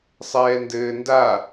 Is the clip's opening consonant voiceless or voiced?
voiceless